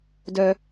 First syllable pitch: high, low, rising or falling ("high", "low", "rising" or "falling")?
high